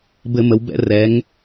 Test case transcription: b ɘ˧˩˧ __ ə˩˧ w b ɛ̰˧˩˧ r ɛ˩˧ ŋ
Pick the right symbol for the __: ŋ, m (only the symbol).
m